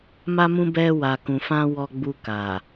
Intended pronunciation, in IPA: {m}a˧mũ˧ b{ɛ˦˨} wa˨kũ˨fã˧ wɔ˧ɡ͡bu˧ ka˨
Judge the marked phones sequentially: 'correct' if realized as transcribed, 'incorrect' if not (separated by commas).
correct, incorrect